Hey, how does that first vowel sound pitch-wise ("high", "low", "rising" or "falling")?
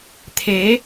rising